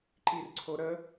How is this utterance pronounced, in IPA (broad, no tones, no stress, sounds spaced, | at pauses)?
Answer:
ǃ i r ǀʰ o ɾ ə